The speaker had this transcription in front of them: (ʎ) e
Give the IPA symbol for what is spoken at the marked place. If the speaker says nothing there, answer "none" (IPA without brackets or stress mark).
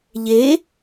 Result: ʎ